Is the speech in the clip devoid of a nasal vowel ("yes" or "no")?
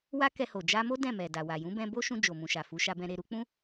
no